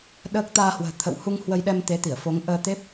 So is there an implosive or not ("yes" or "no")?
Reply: yes